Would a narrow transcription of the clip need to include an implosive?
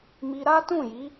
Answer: no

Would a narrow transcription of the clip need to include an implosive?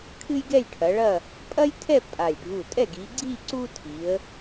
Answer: no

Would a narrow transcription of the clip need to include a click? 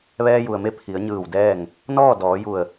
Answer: no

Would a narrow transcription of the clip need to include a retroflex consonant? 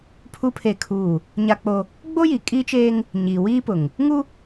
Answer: no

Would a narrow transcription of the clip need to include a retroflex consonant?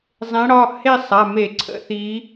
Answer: yes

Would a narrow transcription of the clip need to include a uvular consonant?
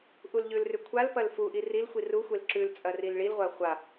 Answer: yes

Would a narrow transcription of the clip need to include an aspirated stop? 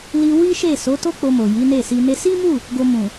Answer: no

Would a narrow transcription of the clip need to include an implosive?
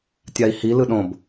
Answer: yes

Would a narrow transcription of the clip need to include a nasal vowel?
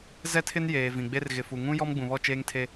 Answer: yes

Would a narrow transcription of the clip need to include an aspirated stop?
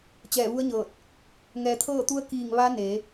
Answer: yes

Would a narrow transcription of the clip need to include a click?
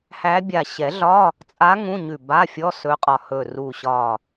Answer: no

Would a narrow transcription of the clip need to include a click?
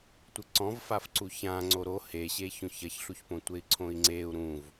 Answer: yes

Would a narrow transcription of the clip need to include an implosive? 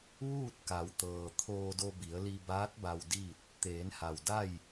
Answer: no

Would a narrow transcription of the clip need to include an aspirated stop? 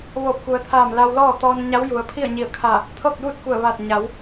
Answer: yes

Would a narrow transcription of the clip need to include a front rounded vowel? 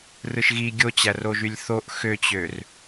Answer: yes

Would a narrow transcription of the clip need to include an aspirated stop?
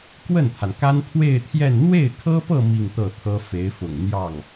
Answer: yes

